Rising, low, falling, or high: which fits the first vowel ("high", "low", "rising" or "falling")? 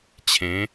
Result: rising